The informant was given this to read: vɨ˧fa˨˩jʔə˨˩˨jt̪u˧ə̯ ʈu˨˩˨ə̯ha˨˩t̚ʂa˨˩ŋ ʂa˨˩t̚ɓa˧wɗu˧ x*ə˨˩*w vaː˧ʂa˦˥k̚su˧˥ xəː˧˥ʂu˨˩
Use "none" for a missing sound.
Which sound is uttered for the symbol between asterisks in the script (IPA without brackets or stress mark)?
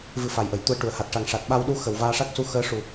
ə˨˩